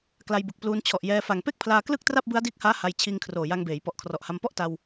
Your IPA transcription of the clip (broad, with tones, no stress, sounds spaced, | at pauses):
k l a˧ j b ɯ˨˩ k̚ p l uː˧ n t͡ɕʰ ɔ˨˩ ʔ j ɛː˧ f a˨˩ ŋ p e˥˩ k̚ pʰ l aː˧ k l ɯ˥˩ k̚ t r a˥˩ p̚ b ɯ˦˥ a̯ d iː˦˥ k̚ h aː˦˥ h a˧ j t͡ɕʰ iː˧ ŋ kʰ r oː˨˩ j a˧ ŋ b eː˩˦ j p ɔ˨˩ ʔ kʰ r ɔ˨˩ ʔ h a˧ m p ɔ˥˩ ʔ t a˧ w